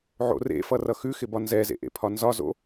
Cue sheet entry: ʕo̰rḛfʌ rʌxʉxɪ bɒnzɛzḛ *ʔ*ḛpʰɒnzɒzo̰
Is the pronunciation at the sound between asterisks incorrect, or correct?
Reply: correct